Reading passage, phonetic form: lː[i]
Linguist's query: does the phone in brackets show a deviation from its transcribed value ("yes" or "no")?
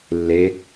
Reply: yes